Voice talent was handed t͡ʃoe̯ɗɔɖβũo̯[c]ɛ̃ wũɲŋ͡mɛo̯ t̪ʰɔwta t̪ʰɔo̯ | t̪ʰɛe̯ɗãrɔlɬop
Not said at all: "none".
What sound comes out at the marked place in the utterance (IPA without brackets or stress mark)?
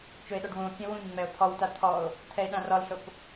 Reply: kʲ